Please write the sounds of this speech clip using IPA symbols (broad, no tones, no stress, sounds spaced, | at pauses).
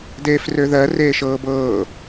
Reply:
d eː f r ø ð ɜ r eː ʃ ɤː b ɤː